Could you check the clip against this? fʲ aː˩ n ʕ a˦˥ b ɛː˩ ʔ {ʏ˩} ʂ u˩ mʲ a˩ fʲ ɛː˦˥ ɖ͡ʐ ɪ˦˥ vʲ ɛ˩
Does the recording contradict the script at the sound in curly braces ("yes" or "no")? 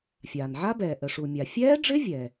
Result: yes